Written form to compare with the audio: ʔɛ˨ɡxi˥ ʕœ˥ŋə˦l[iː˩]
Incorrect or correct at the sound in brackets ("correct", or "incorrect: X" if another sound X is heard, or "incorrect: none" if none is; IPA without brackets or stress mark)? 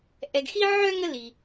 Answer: incorrect: i˩